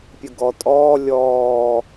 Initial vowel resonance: oral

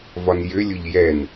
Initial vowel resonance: oral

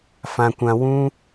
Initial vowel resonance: nasal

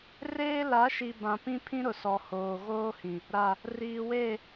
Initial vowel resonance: oral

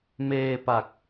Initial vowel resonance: oral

